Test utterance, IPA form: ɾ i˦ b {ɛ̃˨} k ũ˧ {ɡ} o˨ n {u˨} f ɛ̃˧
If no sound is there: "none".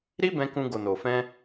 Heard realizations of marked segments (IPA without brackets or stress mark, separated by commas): ɛ̃˧, ɡ, o˨